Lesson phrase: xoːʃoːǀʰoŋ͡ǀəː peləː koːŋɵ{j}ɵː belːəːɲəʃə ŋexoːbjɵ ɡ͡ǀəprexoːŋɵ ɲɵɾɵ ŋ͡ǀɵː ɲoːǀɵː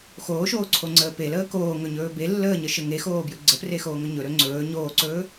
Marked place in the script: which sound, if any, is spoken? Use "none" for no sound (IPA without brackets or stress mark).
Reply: ɲ